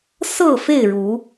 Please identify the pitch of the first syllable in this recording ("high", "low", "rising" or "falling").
falling